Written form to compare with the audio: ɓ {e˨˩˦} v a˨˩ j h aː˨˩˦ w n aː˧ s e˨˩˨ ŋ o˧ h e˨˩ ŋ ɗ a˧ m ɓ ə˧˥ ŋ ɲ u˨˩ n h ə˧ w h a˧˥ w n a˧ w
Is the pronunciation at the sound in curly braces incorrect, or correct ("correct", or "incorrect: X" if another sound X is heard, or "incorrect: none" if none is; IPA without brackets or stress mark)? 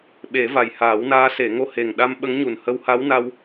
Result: correct